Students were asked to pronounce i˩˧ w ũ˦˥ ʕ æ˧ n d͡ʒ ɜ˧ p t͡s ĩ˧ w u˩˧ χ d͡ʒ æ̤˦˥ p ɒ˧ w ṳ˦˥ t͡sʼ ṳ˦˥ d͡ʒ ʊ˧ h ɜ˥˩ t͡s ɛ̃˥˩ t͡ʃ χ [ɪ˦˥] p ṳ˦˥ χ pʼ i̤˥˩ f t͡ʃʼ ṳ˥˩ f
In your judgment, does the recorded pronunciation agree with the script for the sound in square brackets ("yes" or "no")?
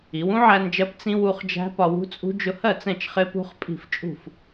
yes